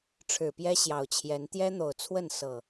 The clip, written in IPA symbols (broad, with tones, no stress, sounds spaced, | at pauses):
ʈ͡ʂʰ ɻ̩˨˩ p j ɛ˦ ɕ j ɑ˨˩ ʊ̯ t͡ɕʰ j ɛ˨˦ n t̪ j ɛ˦ n̪ o˨˩ ʊ̯ t͡sʰ w ə˥˨ n s ɤ˨˩